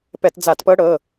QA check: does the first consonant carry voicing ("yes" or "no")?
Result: no